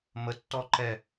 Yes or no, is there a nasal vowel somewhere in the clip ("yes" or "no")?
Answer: no